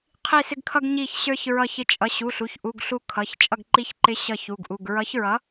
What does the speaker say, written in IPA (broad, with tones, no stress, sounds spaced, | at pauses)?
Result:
qʰ i˧˩ s ɪ˧ ɡ kʰ ʌ˧ ɡ ɲ i˧˩ ç ɕ ə˞˧ ç ɹ ʌ˧˩ ç ɪ˨˥ t͡ʃʼ ʌ˩˧˩ ɕ u˩˧˩ ɬ u˩˧˩ ç ʔ u˩˧˩ ɡ ɬ u˧˩ kʰ ʌ˩˧˩ ç t͡ʃʼ ʌ˧˩ ɡ ǃ i˨˥ ç ǃ ɪ˨˥ ɕ ʌ˧˩ ç u˩˧˩ ɡ ʔ u˩˧˩ ɡ ɹ ʌ˨˥ ç ɹ ʌ˨˥